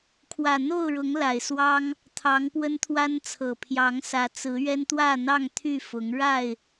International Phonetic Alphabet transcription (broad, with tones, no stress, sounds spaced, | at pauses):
kʰ w ä˨˩ n̪ o˥˨ ʊ̯ ɻ ʊ˨˦ ŋ l a˨˩ ɪ̯ s w ɑ˦ ŋ | t̪ʰ ɑ˨˦ ŋ p w ə˦ n t̪ʰ w a˦ n t͡sʰ ɤ˨˩ pʰ j ɑ˨˦ ŋ s ä˨˦ t͡s ɹ̩˨˦ ɥ ɛ˦ n t̪ w ä˥˨ n̪ ɑ˥˨ ŋ t̪ʰ y˥˨ f ʊ˨˦ ŋ ɻ a˥˨ ɪ̯